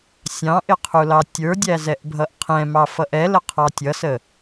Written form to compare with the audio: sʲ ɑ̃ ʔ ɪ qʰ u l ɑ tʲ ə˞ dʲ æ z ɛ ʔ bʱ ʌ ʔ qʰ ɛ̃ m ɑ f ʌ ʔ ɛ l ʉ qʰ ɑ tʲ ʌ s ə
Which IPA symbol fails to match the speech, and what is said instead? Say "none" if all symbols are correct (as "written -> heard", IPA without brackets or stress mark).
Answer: ʉ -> ə